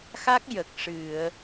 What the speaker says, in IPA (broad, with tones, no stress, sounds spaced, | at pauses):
x a˦˥ k̚ j ə˨˩ k̚ ʂ ɨ˨˩˨ ə̯